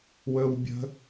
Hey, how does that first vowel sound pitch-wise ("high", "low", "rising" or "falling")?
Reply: high